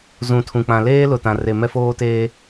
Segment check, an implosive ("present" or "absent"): absent